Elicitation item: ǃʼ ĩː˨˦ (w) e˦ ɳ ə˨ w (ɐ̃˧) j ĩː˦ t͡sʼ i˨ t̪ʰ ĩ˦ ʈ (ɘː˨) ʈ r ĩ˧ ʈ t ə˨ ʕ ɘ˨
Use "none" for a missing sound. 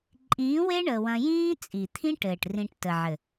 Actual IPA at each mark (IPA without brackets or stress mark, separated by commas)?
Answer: w, ɐ̃˧, ɘː˨